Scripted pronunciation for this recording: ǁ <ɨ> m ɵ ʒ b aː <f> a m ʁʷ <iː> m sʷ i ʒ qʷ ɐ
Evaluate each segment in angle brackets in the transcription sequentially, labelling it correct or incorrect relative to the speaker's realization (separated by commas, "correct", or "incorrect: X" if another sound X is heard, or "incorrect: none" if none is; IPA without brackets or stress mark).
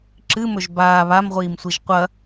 correct, incorrect: β, correct